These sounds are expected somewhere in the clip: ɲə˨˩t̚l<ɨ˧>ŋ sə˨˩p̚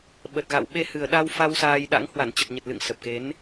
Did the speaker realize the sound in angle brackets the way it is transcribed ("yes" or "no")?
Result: no